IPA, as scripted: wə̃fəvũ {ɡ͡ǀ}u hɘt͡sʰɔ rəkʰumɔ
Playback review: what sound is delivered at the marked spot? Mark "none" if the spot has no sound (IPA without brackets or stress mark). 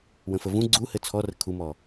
ɡ͡ǀ